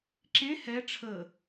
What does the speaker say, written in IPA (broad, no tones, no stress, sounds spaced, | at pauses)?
ǁ ẽ h ɛ ʈ͡ʂʰ ə